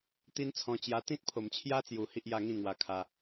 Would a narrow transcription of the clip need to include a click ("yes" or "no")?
no